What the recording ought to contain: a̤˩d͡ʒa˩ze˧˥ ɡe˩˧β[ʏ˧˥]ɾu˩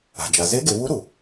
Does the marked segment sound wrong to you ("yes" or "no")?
yes